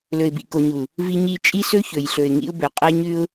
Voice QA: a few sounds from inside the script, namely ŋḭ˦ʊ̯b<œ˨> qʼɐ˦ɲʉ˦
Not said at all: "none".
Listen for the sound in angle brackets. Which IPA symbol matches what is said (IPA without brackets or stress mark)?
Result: ɵ˨